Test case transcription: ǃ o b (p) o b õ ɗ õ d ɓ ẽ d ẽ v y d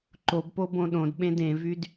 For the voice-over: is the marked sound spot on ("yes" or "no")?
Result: yes